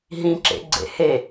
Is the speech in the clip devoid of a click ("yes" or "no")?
no